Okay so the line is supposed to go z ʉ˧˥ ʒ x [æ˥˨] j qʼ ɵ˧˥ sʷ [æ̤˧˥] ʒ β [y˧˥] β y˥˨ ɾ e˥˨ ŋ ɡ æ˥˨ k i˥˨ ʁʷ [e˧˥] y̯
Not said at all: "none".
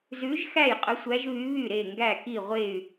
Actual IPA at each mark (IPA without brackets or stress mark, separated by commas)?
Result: æ˥˨, æ˧˥, y˧˥, e˥˨